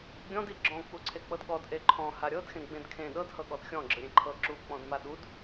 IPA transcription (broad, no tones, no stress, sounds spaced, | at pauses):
ɡʲ ɔ̃ d i ɡ͡ǁ ɔ̃ k͡p u ǀʰ e k͡p ɤ d ɠ ɔ d ʔ e ǃʰ ɔ̃ h a ɾʲ ɤ d x ẽ ɡ͡b ẽ d kʰ ẽ ɗ ɤ d h ɤ ɠ ɔ d xʲ ɔ̃ ɡ͡ǁ ɯ ɾʲ ẽ ǃʰ ɤ ǁ u k͡p ɔ̃ d m a ɗ u d